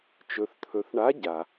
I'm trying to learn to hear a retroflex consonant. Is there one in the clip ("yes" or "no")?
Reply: yes